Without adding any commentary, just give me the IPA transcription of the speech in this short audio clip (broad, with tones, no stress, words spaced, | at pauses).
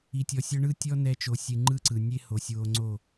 i˨tʲɔ˨sʲɔ˧ ɳɯ˦ tʲɔ˦ nɛ˧t͡ʃo˨sʲɨ˨ ŋ͡ǃɯ˦ǀɯ˨ nʲe˦ho˨sʲwo˧ ŋ͡ǀo˦˨